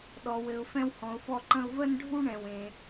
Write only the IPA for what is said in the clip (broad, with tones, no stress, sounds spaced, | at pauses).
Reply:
ɗ ɔ˧ w ɘ˧ ʊ̯ f ɛ̃˦ w h ɔ̃˧ ʊ̯ f ɔ˦ ǃ ə̃˦ ʊ̯ v ə˦ n ɖʱ u˦ ɳ ɛ̃˧ w ẽ˧